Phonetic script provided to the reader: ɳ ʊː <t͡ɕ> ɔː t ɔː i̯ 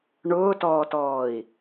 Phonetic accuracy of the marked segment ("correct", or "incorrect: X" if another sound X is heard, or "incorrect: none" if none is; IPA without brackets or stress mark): incorrect: t